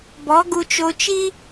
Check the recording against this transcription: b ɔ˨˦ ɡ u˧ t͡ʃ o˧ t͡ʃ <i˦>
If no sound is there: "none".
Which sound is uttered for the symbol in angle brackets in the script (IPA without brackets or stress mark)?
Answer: i˦